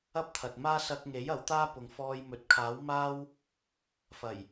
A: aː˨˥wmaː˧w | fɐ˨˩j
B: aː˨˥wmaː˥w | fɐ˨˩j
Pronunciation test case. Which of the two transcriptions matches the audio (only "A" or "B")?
B